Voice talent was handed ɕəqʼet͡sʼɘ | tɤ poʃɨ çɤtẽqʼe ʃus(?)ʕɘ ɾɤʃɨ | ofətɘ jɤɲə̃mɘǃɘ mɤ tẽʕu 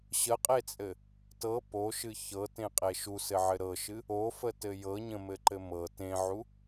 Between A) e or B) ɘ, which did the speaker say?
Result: B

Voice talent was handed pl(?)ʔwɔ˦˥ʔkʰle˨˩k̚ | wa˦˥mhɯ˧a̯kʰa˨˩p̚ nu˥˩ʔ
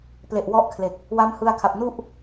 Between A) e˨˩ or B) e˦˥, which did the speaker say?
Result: A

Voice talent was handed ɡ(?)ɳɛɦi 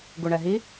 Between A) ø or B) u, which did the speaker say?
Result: B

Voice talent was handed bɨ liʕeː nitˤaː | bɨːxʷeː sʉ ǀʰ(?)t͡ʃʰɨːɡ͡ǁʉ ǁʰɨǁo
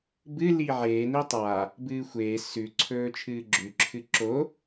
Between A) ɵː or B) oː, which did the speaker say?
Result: A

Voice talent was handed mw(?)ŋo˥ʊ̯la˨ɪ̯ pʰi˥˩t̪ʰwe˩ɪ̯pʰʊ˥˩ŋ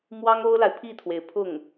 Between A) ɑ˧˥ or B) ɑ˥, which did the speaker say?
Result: B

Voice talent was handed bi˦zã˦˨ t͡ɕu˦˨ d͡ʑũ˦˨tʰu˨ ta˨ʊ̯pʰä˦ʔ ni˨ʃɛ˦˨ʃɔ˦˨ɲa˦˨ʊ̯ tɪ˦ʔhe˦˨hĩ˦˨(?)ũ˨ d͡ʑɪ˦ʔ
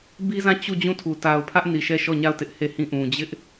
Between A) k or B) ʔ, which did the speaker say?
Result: B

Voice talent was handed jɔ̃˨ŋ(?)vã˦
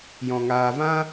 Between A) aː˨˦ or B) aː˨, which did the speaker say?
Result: B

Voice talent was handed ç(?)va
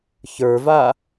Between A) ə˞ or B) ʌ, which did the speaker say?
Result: A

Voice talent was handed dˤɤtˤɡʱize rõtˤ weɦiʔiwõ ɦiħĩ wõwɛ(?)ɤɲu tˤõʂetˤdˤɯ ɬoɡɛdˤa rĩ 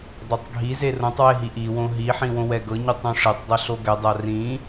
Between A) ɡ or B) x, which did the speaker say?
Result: A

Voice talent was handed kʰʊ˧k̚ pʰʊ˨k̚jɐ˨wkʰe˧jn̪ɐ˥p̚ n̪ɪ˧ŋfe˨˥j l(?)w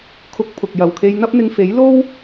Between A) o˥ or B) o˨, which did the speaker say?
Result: A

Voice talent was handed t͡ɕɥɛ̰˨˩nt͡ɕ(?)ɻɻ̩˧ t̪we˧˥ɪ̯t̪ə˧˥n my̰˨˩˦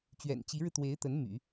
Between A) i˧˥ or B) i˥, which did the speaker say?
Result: A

